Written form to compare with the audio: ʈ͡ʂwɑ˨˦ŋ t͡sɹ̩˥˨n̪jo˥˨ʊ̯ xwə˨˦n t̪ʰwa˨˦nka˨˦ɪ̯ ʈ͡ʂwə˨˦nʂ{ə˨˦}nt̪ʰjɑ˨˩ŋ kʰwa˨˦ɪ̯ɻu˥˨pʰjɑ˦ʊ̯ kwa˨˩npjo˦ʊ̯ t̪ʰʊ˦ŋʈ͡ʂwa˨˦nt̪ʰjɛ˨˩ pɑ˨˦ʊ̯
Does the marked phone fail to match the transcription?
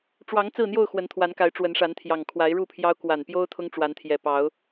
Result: yes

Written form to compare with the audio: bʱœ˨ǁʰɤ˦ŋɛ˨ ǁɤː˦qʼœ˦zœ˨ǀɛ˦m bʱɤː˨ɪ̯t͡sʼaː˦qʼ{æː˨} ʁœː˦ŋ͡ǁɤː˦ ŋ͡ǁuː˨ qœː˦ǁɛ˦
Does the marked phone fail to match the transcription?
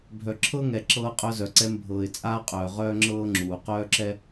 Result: yes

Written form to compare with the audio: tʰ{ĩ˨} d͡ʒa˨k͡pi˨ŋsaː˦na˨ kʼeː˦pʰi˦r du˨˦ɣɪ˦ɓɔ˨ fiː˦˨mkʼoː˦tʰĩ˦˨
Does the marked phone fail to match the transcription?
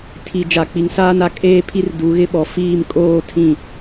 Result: yes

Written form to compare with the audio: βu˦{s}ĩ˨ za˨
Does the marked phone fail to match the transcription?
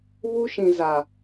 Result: yes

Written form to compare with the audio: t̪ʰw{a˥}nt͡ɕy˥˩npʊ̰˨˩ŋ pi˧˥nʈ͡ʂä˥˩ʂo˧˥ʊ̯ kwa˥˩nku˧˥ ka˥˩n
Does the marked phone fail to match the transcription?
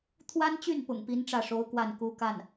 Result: no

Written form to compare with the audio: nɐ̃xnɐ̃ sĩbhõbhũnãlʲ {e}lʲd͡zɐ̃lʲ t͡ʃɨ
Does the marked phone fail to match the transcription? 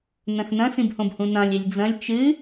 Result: no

